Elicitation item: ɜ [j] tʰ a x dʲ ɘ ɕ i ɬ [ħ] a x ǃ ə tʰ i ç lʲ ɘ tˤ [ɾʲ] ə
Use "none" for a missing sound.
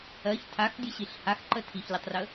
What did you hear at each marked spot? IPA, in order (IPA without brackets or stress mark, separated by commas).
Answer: ç, h, r